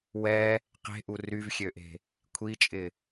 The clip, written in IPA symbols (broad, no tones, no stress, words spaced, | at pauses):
wɛ | qe̤ʔu ryvxʲøʔe̤ | kʷʰit͡ʃʼɪ